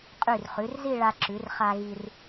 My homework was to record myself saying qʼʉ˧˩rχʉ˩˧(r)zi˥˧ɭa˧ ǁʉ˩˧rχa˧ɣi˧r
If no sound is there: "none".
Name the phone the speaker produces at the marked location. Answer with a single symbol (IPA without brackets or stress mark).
r